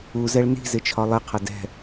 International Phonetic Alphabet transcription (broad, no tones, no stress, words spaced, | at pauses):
uzɛɭ ni̤zɪt͡ʃʰɒ lˠɪqʰʌ dɛ̤